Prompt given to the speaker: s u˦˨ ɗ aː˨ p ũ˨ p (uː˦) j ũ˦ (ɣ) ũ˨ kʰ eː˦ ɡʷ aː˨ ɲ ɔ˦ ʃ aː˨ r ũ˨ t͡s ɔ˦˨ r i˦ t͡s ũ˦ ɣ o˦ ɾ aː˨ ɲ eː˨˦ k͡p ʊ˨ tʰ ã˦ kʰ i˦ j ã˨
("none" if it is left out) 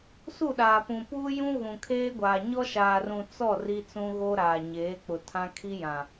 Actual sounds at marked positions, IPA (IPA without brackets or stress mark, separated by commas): uː˦, ɣ